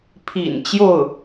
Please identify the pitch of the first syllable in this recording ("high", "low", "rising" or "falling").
low